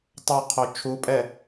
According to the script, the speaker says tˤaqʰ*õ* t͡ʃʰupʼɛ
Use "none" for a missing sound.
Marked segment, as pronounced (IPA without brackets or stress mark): o